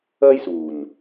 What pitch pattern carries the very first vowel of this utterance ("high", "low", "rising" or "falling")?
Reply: high